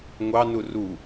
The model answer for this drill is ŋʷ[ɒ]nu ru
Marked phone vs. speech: incorrect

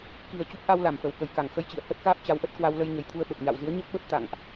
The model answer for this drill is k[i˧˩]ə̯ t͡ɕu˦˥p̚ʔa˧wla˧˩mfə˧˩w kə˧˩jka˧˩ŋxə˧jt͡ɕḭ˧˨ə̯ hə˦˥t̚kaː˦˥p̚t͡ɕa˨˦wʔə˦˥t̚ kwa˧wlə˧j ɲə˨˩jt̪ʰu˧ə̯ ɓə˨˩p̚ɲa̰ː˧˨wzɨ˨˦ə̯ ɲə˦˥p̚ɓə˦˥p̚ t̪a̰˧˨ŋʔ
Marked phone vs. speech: incorrect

